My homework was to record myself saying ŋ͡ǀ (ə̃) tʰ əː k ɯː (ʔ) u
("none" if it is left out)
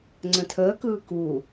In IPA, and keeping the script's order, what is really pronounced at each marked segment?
ə̃, k

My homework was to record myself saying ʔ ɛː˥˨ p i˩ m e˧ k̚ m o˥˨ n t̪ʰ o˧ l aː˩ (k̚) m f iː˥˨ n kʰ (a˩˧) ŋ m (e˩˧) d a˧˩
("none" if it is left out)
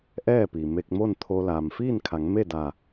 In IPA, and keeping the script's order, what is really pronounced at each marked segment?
none, a˩˧, e˥˨

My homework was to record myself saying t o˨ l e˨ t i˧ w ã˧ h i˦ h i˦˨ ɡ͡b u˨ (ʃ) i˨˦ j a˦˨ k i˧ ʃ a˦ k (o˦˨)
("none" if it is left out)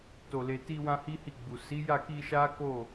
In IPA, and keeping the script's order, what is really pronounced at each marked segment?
s, o˦˨

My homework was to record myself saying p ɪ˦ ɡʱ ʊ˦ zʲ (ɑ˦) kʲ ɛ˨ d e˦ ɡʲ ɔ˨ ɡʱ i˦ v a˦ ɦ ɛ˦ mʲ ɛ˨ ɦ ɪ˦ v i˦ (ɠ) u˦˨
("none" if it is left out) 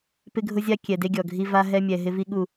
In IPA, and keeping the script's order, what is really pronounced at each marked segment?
a˦, ɠ

